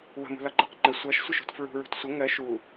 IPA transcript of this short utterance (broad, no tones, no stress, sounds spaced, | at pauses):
w ə̤ m ṳ l ɒ ǃ ʌ q ŋ͡ǃ ə sʷ ʌ ʃ sʷ ə ʃ ṳ t f ɹ ṳ ɹ ṳ t sʷ ə ŋ ɜ ʃ u